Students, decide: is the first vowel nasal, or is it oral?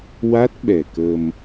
oral